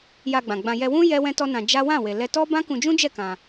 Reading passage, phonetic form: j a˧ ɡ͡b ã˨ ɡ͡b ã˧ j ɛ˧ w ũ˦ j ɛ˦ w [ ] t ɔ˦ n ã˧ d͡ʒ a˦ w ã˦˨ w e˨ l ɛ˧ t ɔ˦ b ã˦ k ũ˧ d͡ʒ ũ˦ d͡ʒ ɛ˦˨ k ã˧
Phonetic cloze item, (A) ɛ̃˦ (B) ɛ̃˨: A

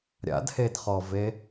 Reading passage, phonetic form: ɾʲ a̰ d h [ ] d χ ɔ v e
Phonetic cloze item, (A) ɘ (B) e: B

